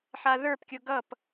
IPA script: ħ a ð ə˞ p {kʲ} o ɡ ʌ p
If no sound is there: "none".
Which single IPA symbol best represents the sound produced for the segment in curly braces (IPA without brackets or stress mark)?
kʲ